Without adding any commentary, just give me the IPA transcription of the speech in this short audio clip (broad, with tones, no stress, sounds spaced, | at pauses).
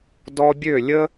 d ɔ˧ bʲ ø˦˨ lʲ ə˦